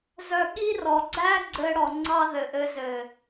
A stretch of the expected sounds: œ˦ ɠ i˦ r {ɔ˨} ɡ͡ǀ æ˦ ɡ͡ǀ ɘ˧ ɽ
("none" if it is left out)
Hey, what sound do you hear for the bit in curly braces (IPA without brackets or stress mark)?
ɔ˨